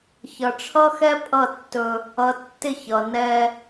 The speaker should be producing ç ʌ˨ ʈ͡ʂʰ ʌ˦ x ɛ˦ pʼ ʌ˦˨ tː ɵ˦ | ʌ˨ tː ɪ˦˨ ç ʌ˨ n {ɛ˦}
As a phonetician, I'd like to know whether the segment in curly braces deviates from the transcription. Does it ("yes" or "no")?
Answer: no